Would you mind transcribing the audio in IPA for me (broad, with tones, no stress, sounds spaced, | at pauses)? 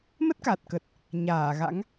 m ə˦˥ t̚ k a˨˩ t̚ k ə˨˩ t̚ | ɲ aː˧˩ ɣ a̰˧˥ ŋ